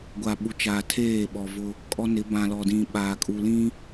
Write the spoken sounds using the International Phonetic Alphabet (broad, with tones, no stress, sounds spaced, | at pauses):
ɡʷ a˨ ɓ u˨ t͡ʃ aː˨ tʰ eː˦˨ ɓ ɔ˨ v ʊ˦ | kʼ ɔ˦ n ɪ˨˦ b ã˨ l ɔ˨ d ĩ˨ ɓ aː˨ kʼ u˨ l ĩ˦